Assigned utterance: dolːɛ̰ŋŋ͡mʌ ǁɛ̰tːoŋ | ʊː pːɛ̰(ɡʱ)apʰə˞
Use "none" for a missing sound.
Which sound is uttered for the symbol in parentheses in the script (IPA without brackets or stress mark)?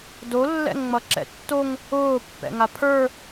ŋ